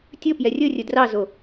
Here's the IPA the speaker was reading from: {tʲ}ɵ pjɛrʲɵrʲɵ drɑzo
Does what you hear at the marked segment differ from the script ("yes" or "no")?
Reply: no